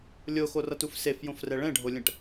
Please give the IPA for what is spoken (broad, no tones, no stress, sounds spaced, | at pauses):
lʲ o x o r ʌ t u f s e f j õ f r ɛ ɭ ɛ̃ ɖʱ o lʲ ɛ̃ ʈ